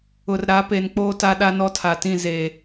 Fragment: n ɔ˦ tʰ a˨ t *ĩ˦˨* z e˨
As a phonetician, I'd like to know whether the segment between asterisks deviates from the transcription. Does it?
no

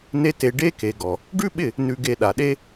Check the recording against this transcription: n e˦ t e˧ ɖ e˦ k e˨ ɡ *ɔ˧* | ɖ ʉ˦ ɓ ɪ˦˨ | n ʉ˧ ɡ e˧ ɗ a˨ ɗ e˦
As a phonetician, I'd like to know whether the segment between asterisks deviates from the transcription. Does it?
yes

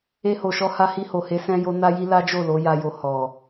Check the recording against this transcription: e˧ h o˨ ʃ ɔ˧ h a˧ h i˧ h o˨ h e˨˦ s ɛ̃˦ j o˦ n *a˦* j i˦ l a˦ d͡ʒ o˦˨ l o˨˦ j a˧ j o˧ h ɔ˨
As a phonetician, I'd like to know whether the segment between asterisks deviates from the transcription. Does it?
no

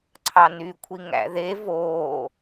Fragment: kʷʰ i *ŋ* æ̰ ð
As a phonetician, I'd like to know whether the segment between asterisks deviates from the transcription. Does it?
no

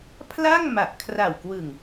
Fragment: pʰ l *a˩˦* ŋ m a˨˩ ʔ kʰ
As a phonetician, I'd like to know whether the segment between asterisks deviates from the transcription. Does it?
yes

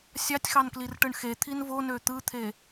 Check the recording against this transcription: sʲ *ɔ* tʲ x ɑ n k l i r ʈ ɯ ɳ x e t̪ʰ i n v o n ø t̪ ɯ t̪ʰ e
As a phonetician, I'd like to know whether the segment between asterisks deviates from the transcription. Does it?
yes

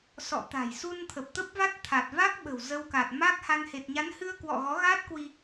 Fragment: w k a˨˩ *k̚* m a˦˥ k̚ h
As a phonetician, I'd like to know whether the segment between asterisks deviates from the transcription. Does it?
yes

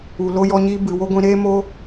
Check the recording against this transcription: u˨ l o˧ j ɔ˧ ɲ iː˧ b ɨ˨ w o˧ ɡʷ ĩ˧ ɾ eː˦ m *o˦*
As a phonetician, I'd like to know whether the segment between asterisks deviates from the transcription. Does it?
no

